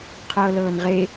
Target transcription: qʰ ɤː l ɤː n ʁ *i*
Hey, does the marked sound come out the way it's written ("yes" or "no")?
no